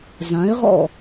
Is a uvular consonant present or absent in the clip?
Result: present